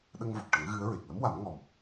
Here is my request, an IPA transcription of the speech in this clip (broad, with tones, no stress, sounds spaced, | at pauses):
ɗ ə˧ ŋ v o˨˩ k̚ ʈ ə˨˩˦ ŋ ɣ ɨ˧˥ ə̯ ɹ e˨˩ k̚ l ə˧˥ m w a˨˩˦ m ŋ ɔ˨˩ m